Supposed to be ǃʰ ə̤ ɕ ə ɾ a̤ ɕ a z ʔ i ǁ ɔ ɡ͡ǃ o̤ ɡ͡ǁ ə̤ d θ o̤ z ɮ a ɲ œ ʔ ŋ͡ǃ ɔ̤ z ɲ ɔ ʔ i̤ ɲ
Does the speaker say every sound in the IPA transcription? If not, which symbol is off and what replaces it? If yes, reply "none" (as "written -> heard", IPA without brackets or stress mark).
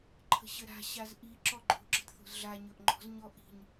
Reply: œ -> ɵ